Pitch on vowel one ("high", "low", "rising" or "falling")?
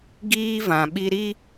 high